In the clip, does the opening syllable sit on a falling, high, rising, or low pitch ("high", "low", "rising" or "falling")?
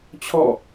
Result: falling